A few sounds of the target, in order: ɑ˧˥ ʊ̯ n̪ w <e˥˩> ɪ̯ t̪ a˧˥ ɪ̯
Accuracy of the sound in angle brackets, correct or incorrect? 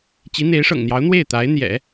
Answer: correct